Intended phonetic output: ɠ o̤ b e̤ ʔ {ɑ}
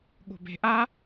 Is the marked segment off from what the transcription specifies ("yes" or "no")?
yes